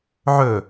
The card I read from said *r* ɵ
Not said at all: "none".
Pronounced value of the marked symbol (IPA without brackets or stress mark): ʕ